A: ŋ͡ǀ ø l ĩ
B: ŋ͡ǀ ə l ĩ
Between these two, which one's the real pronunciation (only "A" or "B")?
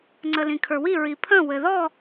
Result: B